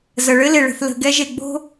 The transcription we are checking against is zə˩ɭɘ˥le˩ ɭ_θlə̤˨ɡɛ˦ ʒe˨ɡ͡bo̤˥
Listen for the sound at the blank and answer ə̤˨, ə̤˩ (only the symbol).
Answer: ə̤˨